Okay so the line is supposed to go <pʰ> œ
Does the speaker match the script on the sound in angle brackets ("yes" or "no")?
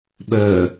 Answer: no